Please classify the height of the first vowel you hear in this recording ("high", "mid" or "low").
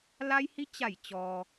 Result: low